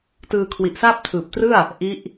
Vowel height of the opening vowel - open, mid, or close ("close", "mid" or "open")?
close